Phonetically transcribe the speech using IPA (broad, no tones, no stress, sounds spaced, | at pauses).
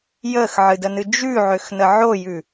j əː x ʕ ɨ d ə n ɨ d͡ʒ ʉ ʕ ø x n ə ʕ o j ʉ